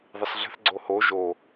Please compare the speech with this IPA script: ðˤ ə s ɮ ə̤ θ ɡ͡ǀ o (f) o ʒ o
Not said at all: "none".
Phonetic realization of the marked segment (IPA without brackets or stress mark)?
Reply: h